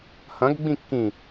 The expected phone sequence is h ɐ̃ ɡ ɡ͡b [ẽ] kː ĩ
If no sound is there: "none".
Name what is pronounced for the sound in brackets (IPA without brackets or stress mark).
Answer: ĩ